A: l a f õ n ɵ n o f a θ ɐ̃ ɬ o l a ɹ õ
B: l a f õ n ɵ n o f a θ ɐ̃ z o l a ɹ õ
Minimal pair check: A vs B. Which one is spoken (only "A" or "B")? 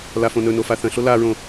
A